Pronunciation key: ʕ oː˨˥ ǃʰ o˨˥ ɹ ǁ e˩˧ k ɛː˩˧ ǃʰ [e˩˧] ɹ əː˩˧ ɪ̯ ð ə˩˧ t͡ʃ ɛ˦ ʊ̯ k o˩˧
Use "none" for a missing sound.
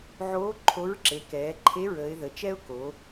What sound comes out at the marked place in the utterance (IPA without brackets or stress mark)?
e˨˥